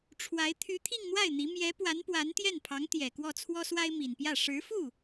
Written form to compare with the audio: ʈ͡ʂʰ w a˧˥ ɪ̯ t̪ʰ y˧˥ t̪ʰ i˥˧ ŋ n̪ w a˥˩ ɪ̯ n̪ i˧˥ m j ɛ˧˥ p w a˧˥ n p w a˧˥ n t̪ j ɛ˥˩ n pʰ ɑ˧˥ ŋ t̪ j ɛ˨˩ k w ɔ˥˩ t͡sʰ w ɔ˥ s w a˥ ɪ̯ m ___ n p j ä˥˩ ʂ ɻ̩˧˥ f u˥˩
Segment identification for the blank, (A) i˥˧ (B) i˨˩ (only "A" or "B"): B